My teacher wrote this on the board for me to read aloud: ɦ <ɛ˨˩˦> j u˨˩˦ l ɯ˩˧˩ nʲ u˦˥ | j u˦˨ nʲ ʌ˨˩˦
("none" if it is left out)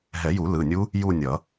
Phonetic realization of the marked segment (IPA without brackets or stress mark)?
ɛ˨˩˦